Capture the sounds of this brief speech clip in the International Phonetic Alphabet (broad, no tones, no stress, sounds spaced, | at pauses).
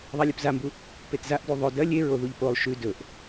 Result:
ðˤ a lʲ ʉ p z a m b u | p e t z a ʔ d u ðˤ ɵ d ɐ lʲ e ɹ o ð u ʎ p o lˠ ʃ ʉ d ɵ ʔ